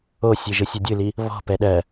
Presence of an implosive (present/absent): present